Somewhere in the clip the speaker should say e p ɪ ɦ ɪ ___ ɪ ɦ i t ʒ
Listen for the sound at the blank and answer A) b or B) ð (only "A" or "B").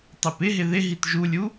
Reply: B